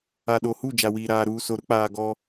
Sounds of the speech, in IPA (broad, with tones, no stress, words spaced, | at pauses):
a˨ɗo˨hu˦˨ d͡ʒa˨wiː˨ɾaː˨ ɾuː˨so˨ ɾʊ˦k͡paː˨ ɡɔ˦